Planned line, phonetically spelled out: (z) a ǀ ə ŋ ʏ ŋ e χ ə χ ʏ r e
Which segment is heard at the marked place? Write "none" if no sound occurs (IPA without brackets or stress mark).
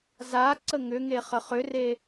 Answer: z